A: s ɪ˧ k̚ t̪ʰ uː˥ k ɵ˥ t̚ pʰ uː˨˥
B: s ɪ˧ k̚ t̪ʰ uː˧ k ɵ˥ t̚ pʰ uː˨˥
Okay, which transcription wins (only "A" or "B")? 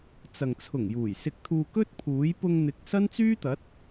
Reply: B